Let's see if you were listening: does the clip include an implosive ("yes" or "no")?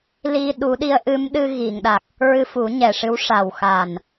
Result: yes